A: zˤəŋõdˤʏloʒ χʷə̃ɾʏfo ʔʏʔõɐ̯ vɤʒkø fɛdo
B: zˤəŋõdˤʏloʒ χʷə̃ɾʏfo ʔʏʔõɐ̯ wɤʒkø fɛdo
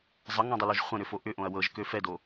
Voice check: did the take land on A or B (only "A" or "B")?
B